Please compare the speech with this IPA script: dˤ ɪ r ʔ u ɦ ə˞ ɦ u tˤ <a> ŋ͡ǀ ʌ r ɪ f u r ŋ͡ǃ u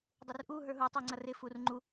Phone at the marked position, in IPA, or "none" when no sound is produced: æ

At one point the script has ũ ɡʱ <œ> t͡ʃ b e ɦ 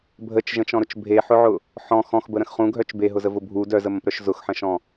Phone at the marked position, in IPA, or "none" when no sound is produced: œ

